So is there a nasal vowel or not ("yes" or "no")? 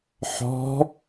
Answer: no